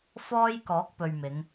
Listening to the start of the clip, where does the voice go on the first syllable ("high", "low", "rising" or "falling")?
high